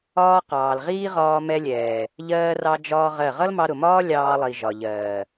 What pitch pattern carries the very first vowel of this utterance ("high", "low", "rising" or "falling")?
high